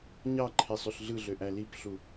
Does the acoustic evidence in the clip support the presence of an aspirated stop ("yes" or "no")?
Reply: yes